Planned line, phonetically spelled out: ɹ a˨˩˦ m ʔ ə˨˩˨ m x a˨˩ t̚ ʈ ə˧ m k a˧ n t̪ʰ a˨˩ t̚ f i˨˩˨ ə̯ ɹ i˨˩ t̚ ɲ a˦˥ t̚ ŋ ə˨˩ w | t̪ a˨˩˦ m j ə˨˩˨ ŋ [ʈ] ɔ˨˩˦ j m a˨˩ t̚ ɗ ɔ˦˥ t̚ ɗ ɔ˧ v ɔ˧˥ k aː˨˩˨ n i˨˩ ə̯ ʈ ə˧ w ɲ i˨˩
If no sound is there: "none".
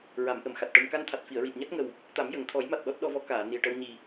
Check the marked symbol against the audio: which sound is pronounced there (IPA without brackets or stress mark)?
t̪ʰ